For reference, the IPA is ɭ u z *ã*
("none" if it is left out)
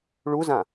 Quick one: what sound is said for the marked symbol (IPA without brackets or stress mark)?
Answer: ã